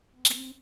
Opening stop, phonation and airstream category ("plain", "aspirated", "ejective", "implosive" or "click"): click